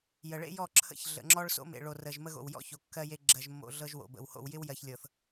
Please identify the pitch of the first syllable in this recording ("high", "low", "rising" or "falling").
low